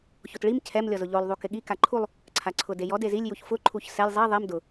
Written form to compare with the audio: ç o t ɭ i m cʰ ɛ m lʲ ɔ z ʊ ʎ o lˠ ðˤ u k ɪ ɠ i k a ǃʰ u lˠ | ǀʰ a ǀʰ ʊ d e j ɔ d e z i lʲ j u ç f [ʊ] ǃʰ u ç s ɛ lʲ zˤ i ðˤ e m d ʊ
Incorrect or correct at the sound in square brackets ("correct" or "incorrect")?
correct